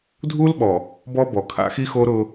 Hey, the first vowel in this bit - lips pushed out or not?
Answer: yes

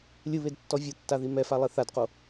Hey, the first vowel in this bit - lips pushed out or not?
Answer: no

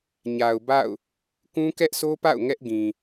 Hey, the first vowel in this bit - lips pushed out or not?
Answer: no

